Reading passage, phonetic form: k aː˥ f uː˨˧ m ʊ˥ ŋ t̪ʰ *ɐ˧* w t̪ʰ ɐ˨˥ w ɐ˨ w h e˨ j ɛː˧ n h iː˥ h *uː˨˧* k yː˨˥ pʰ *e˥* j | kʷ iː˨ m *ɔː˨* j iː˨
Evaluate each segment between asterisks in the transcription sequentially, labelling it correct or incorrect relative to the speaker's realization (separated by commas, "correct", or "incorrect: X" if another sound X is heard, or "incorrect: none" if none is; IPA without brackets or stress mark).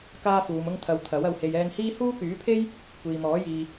correct, incorrect: uː˥, correct, incorrect: ɔː˨˥